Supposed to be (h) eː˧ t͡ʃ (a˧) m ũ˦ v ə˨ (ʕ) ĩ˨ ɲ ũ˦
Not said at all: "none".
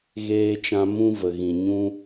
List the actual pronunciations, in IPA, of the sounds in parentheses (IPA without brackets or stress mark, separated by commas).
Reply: ɣ, ã˧, ɣ